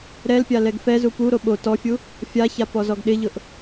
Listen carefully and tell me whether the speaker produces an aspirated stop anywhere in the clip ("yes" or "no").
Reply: no